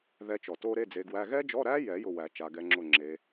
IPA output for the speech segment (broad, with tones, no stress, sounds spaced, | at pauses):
ð ɛ˨˦ t͡ʃ ɔ˩ t o˦˥ ɾ e˧˥˧ d͡z e˨˦ ɡ w æ˧˥˧ ɣ ɛ˦˥ d͡ʒ ɔ˧˥˧ ɾ æ˦˥ j ɛ˨˩˦ j ʊ˦˨ w æ˨˩˦ t͡ʃ a˨˦ ɡ ɛ˨˦ ŋ͡ǁ ʊ˦˨ ŋ͡ǁ e˨˦